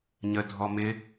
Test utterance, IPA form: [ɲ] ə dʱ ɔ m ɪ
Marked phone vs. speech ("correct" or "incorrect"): correct